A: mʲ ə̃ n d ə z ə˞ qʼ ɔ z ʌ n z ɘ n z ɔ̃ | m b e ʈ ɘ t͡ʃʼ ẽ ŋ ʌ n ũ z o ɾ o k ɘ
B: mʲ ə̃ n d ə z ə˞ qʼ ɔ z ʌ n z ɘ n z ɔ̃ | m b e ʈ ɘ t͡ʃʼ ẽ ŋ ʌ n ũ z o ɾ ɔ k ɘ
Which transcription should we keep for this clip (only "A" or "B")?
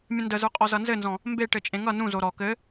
B